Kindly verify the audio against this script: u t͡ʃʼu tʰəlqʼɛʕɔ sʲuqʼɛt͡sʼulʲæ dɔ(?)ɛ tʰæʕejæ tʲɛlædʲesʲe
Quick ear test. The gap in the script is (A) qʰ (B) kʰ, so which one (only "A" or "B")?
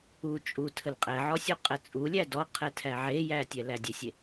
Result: A